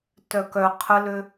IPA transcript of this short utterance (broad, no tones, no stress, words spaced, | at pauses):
tœkœ qʰəlø